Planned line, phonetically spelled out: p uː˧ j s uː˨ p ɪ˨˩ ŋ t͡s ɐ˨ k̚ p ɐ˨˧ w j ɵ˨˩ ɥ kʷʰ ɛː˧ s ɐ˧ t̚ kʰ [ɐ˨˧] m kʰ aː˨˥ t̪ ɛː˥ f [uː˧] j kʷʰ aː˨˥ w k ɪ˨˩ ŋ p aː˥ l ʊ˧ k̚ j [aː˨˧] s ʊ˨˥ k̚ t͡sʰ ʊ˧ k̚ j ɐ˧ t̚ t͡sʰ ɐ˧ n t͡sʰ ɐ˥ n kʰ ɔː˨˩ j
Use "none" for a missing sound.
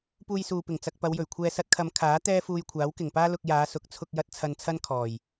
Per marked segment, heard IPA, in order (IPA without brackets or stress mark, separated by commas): ɐ˨˧, uː˧, aː˨˧